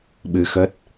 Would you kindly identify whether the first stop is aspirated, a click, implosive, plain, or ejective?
implosive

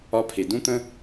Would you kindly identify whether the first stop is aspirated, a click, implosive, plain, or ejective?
aspirated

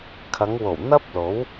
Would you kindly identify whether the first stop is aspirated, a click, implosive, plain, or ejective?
aspirated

